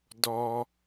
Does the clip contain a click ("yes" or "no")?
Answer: no